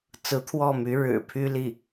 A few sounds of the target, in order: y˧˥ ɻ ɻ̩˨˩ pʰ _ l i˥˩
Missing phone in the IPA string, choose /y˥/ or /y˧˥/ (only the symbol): y˥